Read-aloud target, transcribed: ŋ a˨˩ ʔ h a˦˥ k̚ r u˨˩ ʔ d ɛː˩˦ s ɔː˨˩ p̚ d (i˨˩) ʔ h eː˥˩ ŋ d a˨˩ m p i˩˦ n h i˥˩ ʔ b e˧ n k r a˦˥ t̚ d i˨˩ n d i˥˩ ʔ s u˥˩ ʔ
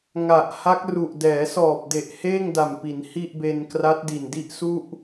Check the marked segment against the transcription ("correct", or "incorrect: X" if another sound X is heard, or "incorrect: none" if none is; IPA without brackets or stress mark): incorrect: e˨˩